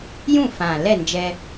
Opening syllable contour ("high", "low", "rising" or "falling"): falling